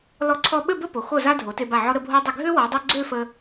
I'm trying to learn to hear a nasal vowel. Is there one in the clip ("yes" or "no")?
no